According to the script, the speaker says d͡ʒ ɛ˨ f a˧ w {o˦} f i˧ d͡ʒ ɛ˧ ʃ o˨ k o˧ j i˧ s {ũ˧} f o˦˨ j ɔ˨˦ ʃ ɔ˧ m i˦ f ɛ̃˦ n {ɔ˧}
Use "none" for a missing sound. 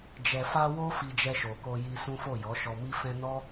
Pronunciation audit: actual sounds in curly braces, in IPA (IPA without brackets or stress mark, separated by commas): o˦, ũ˦, ɔ˦